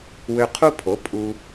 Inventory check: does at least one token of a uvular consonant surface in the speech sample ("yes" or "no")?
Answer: yes